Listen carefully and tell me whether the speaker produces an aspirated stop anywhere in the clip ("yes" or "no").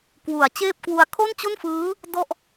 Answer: yes